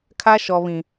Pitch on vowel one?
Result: high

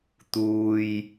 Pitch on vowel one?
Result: low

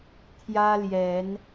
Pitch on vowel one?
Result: high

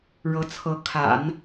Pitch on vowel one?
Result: rising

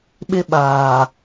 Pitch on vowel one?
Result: high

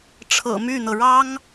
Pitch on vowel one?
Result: low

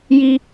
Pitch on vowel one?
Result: high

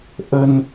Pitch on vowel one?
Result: low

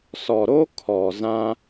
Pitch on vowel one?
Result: low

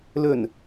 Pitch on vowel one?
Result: low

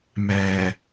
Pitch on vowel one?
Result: low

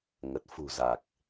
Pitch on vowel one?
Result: low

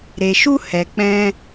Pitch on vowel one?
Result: low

